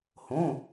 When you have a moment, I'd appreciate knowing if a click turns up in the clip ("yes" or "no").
no